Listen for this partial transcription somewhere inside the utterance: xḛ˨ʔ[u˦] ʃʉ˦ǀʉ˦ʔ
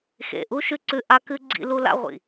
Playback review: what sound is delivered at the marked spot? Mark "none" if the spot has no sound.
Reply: u˦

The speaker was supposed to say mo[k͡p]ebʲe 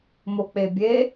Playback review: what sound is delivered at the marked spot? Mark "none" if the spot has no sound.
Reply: k͡p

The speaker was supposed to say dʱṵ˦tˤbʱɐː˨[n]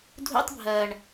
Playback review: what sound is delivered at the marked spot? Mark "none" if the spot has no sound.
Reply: ɳ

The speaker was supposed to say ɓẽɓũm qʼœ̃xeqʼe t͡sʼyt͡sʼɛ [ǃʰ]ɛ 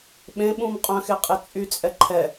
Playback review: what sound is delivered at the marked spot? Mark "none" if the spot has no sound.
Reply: ǃʰ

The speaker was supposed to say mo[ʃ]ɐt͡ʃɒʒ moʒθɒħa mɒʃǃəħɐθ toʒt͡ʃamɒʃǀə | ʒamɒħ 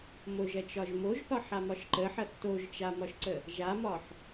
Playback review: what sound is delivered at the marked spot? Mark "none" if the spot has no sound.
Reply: ʒ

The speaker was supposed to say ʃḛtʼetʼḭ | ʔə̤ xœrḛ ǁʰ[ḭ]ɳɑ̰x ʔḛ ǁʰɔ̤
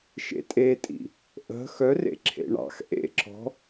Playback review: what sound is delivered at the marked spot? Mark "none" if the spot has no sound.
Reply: ḛ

